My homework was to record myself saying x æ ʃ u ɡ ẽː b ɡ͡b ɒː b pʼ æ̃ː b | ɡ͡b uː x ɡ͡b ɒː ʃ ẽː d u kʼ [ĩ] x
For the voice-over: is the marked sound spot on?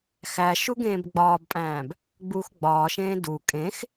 no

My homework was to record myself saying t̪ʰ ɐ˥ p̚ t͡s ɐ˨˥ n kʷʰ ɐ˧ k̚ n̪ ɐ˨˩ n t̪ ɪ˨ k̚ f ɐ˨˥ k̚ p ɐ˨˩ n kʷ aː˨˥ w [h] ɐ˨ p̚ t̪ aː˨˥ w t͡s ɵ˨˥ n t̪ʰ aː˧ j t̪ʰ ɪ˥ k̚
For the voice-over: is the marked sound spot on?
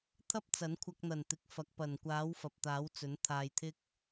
no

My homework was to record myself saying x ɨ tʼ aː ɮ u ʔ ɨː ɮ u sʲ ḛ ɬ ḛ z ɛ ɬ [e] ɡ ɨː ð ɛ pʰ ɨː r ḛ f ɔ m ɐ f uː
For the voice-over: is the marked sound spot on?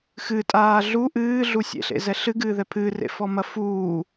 no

